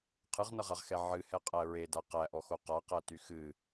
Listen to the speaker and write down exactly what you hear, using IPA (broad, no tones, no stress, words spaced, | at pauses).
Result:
qʰɨʁnʌʁaʁxɛ ʕɨhɛqʼæ ɹeda qæʔɔxo qaqæty xɨ